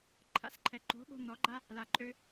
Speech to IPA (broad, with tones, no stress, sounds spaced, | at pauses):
ǃʰ a̰˧ s ǃʰ ɛ˨ ǃ o̤˨˦ ɠ o̤˧ n̪ ɔ˨˦ ɡ͡ǃ a˦ | l a˨ ǃʼ ø˧